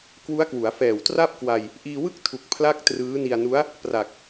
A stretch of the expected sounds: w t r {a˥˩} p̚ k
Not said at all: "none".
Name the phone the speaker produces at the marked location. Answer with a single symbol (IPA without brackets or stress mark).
a˥˩